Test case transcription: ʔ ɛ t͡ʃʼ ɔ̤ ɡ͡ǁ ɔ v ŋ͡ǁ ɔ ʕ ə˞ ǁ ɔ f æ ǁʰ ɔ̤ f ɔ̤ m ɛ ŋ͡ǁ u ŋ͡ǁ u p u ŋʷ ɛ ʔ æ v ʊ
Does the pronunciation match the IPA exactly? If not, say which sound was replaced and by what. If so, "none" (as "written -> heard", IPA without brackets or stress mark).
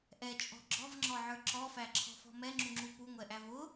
none